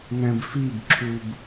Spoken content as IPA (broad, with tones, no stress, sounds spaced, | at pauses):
n̪ ɛ̃˧ b f i˦˨ b ǁʰ u˧ b